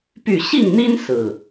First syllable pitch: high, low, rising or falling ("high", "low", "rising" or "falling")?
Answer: falling